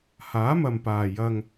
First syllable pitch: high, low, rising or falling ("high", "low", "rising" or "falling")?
rising